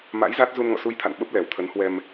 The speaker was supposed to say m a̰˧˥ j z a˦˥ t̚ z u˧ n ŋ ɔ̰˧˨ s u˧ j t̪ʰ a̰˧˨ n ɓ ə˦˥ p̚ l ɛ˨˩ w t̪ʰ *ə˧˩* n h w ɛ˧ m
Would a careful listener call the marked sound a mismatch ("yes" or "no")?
yes